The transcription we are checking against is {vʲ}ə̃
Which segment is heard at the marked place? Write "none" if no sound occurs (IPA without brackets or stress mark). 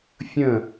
fʲ